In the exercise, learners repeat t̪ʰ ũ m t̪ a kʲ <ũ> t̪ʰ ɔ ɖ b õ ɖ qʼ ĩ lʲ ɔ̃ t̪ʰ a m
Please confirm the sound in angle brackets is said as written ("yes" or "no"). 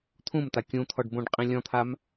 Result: yes